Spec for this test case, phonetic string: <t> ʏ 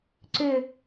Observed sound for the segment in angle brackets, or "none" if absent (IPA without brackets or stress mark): ǀ